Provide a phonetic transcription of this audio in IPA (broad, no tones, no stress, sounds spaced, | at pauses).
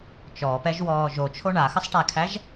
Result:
t͡ʃ ɔ p ɛ ʒ w ɔː ʒ o t͡ʃʰ o ɳ a x ə sˤ ʈ æ kʰ æ ʒ